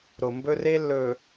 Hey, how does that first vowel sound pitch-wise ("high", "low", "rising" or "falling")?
low